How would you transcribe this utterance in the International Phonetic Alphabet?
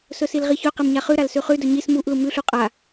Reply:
s ɵ s i l ʁ i ç ɵ q e m ɲ a χ ʉ ɾ a l s ʉ χ ʉ d ɵ ɲ i s m u ʔ l u m ʉ ɬ u qʼ a

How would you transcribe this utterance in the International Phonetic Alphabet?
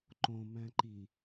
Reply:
ǃ õ m æ̃ ǃ i

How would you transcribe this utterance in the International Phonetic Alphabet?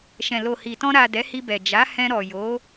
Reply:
ʃ ɛ̃˨ l o˨ h i˨ t ɔ̃˧ ɾ a˨ d ɛ˨˦ h i˧ b ɛ˨ d͡ʒ a˨˦ h ɛ̃˧ ɾ ɔ˨ j o˨˦

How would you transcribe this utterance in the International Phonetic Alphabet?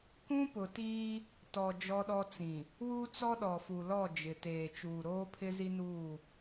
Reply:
k ũ˦ p ʊ˨ t iː˦ | t ɔ˨ d͡ʒ ɔ˦ ɗ ɔ˦ t͡s ĩ˨ | w u˦ t͡s ɔ˦ ɗ ɔ˨ f u˨ l ɔ˦˨ d͡ʒ ɪ˨ t eː˨ t͡ʃ uː˨ ɾ oː˦ pʰ ɪ˦ z i˦ n uː˦˨

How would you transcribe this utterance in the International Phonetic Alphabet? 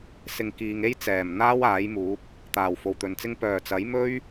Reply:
s ɪ˨ ŋ k iː˨ ŋ e˥ j t͡s ɛː˨˩ m n̪ aː˥ w aː˨˥ j m uː˨˥ p̚ | t̪ aː˨˩ w f o˨˩ w t̪ ɵ˨ n t͡s ɪ˥ ŋ p œː˨˩ t͡s ɐ˨˥ j m ɵ˥ ɥ

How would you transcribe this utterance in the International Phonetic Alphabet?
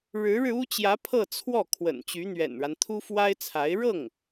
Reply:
ɻ ɻ̩˧˥ ɻ ɻ̩˧ u˥ t͡ɕ j ä˧˥ pʰ ɤ˥˧ t͡sʰ w ɔ˥˩ kʰ w ə̰˨˩ n t͡ɕ y˧˥ n̪ ɥ ɛ̰˨˩ n ɻ a˦ n t̪ʰ u˥ f w a˥ ɪ̯ t͡sʰ a˧˥ ɪ̯ ɻ ɤ˥˩ ŋ

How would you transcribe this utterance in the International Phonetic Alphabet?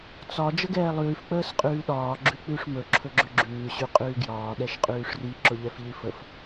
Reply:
t͡s ɒ d͡ʒ ə ɡ ɛː lˠ ʉː f k͡p əː s qʼ ʉː ɗ ɒː ɡ͡ǁ ʉ k͡p ʉ ʂ m ɵ ǁʰ ɵ ɡ͡ǁ ɵ ɡ͡ǁ ʉː ɕ ʉ qʼ ʉː ɡ j ɒː ɗ ɛ ʃ qʼ ʉː ʂ r i ǁ ʊ ʎ ɛ f ʎ i f ə f

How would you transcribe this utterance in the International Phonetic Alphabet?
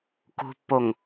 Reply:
k ṳ pː o ŋ

